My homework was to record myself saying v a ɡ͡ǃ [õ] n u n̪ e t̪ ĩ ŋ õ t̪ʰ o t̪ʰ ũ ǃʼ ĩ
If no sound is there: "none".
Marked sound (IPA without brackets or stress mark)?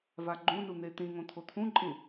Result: ũ